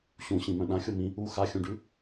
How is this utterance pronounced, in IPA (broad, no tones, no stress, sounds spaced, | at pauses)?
ɕ ũ ɕ ĩ m œ̃ ɗ ã xʲ o m ĩ | u x a xʲ ũ ɖ ʉ